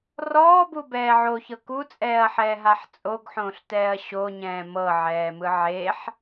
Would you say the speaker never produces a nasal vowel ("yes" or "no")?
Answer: no